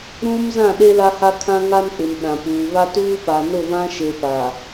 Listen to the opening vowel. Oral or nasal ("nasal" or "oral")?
nasal